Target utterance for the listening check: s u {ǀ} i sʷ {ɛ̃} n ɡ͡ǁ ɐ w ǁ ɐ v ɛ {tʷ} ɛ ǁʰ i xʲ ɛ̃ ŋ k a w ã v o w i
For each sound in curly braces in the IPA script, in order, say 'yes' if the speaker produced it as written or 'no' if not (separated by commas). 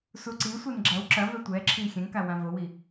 yes, no, yes